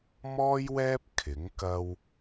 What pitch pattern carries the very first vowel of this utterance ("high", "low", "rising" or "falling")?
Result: high